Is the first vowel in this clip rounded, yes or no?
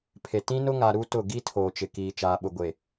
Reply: no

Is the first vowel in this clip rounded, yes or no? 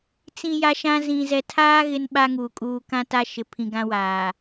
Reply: no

